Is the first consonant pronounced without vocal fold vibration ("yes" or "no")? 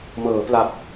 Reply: no